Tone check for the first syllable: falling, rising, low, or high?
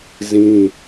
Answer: high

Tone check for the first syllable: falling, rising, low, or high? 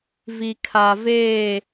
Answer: low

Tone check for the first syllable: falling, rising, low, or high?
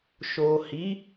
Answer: low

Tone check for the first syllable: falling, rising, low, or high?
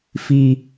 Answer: high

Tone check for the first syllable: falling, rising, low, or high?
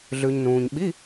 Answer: low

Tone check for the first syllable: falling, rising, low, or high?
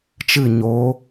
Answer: falling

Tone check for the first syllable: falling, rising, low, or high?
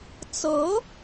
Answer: rising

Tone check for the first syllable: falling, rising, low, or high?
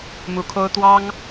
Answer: rising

